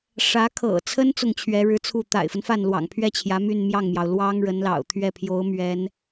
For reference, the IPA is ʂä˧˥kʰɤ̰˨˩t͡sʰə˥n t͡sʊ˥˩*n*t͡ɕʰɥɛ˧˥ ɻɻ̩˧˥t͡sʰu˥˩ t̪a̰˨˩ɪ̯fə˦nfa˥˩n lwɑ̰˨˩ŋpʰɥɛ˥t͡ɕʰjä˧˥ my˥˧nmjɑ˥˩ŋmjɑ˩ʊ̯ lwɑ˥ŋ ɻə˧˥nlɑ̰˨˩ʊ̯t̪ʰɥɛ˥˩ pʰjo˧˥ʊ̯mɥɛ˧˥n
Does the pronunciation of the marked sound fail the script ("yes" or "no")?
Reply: yes